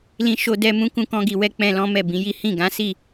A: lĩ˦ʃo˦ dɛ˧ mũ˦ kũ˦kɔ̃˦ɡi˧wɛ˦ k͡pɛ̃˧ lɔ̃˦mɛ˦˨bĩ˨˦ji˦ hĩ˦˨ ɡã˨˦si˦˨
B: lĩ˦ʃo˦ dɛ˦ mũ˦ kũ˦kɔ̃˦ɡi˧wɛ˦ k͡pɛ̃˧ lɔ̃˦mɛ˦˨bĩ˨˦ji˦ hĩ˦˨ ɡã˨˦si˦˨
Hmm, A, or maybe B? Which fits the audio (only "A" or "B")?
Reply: B